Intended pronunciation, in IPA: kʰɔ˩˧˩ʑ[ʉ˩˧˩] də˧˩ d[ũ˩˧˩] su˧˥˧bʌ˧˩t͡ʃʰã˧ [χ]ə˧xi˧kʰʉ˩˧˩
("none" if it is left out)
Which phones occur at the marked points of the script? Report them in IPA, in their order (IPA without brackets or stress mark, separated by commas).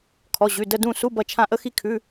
ʉ˩˧˩, ũ˧˩, ʔ